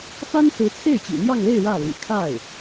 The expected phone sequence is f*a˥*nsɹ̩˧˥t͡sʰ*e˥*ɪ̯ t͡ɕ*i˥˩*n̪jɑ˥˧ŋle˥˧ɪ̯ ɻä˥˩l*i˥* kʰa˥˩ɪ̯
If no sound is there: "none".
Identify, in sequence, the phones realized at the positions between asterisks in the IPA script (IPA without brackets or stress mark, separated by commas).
a˥, e˥˩, ḭ˨˩, ḭ˨˩